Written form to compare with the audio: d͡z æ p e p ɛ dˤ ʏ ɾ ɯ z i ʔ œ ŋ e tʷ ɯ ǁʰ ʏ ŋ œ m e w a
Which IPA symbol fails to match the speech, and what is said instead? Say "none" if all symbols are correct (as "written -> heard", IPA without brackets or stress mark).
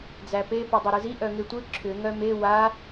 ɛ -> œ